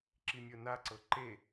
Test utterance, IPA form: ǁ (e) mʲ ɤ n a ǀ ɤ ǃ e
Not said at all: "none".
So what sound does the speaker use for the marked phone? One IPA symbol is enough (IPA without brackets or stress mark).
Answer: i